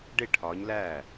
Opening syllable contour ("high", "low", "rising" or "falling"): falling